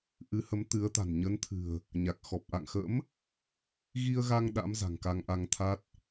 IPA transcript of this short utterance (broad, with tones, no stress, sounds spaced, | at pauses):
ʔ ɨ˨˦ h ə˨˦ m t̪ ɨ˨˦ ə̯ t̪ a̤˨˩ n ɲ ə˨˦ n t̪ʰ ɨ̤˨˩ ə̯ | ɲ a˨˩ k̚ x ɔ˨˩ p̚ ʔ a̰˧˨ ŋ x ə̰˧˥ m | ɣ i˧ ə̯ ɣ a˧ ŋ ɗ a̰˧˥ m z a̤˨˩ ŋ k a˧ ŋ ʔ a˧ ŋ t̪ʰ a˦˥ t̚